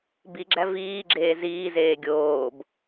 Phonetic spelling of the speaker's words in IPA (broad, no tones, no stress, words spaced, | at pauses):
biɡ͡ǁæ viːɡ͡ǁeː ziːzeː ɡʲoːb